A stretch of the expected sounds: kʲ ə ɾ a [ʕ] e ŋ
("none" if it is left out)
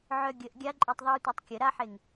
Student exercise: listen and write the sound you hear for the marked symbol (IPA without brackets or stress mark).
ħ